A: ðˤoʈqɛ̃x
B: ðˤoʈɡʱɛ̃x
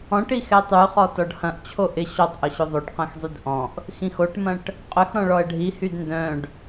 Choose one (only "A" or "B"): A